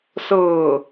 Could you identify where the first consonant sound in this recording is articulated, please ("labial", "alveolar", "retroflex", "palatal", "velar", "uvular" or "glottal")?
alveolar